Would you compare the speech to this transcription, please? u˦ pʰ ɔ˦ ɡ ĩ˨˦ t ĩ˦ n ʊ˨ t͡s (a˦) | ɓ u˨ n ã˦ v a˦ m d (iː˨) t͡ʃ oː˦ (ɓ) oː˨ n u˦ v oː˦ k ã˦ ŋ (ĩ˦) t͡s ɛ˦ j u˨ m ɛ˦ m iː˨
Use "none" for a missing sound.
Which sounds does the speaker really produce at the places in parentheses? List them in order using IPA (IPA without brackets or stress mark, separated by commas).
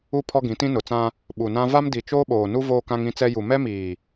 ã˦, i˨, ɓ, ĩ˦